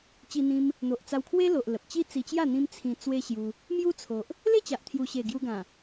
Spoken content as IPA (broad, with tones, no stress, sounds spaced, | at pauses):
t͡ɕ i˧ n̪ ĩ˧ m | n̪ o˨ ʔ t͡s a˧ w kʰ w e˦ l o˨ ʔ l ə˨ p̚ t͡ɕ i˦ t͡s i˧ t͡ɕ j a˥˧ n̪ ĩ˦ m t͡sʰ ĩ˧ t͡s w e˦ ɕ j u˧ | m j u˦ t͡sʰ o˨ ʔ | l e˥˧ t͡ɕ a˨ ʔ t̪ʰ j u˨˩ ɕ e˨˩ ɡ j u˧ ɡ ã˨˩